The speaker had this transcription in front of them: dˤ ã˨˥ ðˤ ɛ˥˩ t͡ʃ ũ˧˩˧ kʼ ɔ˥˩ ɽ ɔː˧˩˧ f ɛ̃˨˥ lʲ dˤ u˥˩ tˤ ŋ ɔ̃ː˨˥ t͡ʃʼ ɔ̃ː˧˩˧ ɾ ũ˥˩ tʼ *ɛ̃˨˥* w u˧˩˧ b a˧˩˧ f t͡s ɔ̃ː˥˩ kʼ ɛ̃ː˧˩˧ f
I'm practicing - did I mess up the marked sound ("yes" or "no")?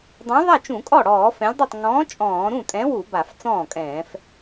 no